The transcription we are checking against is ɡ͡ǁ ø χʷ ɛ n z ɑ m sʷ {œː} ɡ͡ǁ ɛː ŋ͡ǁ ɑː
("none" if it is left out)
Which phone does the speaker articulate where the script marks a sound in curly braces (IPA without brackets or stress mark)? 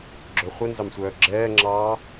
œː